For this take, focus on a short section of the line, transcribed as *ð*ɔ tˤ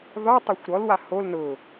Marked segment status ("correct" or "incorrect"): correct